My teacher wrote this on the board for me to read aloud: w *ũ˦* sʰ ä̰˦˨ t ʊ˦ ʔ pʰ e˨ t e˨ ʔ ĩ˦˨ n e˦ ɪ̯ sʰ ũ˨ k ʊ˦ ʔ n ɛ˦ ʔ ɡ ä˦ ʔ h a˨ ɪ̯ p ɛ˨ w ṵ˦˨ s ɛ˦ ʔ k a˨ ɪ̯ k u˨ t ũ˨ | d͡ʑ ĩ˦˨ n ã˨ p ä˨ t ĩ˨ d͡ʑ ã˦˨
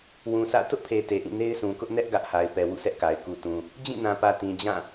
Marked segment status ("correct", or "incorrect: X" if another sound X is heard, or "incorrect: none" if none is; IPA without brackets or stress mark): incorrect: ũ˨